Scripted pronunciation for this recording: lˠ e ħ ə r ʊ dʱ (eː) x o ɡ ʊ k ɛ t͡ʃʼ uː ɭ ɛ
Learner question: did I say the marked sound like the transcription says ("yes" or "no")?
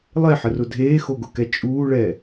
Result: yes